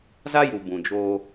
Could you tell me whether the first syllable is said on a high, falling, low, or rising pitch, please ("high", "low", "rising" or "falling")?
high